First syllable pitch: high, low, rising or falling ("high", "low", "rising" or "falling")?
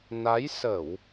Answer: rising